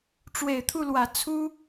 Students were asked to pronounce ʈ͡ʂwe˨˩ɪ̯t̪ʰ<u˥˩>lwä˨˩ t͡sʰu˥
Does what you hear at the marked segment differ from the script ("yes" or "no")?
no